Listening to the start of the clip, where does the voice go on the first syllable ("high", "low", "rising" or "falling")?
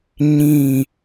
falling